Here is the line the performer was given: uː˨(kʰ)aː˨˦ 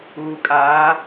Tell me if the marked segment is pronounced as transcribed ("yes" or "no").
no